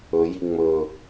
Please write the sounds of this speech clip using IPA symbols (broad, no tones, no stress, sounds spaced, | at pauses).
ɵ j i ŋ͡m ɵ